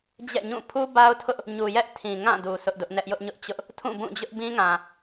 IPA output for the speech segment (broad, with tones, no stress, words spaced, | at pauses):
d͡ʑɛ̰˦˨ɲũ˦˨ pʰu˦ba˦ʊ̯tʰʊ˦ʔ | ɲu˨jɛ˦ʔtʰĩ˨ ŋã˦˨du˨ sʊ˦ʔdʊ˦ʔnɛ˦ʔ jʊ˦ʔɲʊ˦ʔt͡ɕʊ˦ʔ | tʰũ˦˨bũ˦˨d͡ʑʊ˦ʔ bĩ˦ŋã˨